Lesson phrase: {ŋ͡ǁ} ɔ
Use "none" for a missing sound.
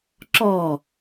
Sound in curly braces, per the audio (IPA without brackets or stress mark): ǁ